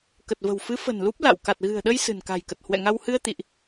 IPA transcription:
k ə˨˩ t̚ v ə̤˨˩ w f ɨ˨˦ f ə̤˨˩ n l u˦˥ p̚ l a̰˧˨ w k a˨˩ t̚ ɣ ɨ̤˨˩ ə̯ ɗ ə˧ j s ɨ̤˨˩ n k a̤˨˩ j k ə˨˩ t̚ h w ɛ̰˧˨ ŋ a˧ w h ɨ˧ ə̯ t̪ ḭ˧˨ ʔ

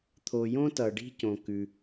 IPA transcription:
t̪ʰ o˩ j õ˥ t ʌ˩ ɖ i̤˥ c õ˩ k ʉ˩

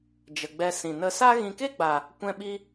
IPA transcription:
d͡ʒ ə˨ ɡ͡b ɛ˧ s ĩ˨ n ə˧ s a˦ ɣ ĩ˧ k e˦ ɡ͡b a˨ | kʷ ɛ̃˧ ɓ i˧

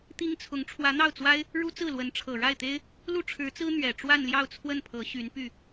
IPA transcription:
t̪ i˥ ŋ t͡sʰ ʊ˧˥ ŋ ʈ͡ʂʰ w ä˧˥ n̪ ɑ˥˩ ʊ̯ t͡s w a˥ ɪ̯ | ɻ u˥ t͡s ɹ̩˥˩ l w ə˧˥ n ʈ͡ʂʰ ɤ˨˩ ɻ a˥˩ ɪ̯ t̪ e˥ ɪ̯ | l u˥˩ ʈ͡ʂʰ ɻ̩˧˥ t͡s ɹ̩˥ n̪ ɥ ɛ˨˩ ʈ͡ʂ w a˥˧ n l j ɑ˥˧ ʊ̯ t͡sʰ w ə˥˩ n pʰ ɤ˧˥ ɕ y˧˥ n p y˥˩

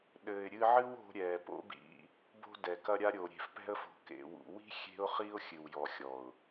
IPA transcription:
ɗ ɘː˨ ɪ̯ ɾʲ ɨ˧ ʕ ɨ˦ w o̤˧ ɾʲ ɛː˨ p o̰˦ b ḭ˧ | b o̤˧ d ɛ˨ k ɐ˧ ɾʲ a˧ ɾʲ oː˨ ɾʲ e̤˨ f p ɛ̤˧ ə̯ f o̤˨ k ḛ˨ w ṵ˨ w i̤˦ xʲ e̤˦ ʊ̯ χ i˦ ʊ̯ xʲ ɨ˨ w j ɔ˨ xʲ ɔ˨ ʊ̯

